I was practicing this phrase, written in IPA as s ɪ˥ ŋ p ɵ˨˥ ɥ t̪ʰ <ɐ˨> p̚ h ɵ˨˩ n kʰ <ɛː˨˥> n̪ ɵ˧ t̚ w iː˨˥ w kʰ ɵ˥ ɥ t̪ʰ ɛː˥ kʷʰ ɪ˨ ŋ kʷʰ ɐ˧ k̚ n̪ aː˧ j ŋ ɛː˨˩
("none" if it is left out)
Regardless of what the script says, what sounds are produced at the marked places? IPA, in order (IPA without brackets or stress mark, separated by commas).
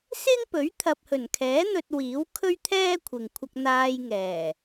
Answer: ɐ˨, ɛː˨˥